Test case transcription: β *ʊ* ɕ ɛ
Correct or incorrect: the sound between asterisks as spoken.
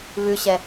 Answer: incorrect: ʉ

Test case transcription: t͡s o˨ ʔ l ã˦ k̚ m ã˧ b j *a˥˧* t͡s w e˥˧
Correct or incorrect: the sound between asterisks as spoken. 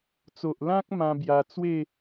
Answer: incorrect: a˧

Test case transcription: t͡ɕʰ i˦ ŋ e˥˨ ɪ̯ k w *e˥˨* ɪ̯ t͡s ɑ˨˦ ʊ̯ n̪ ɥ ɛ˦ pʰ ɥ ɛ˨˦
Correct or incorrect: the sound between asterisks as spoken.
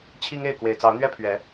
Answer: incorrect: e˨˩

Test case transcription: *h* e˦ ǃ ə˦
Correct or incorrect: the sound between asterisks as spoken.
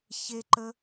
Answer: incorrect: ç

